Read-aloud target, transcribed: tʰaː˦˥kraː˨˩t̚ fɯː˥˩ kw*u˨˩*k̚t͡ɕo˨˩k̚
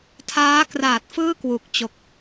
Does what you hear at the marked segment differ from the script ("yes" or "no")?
no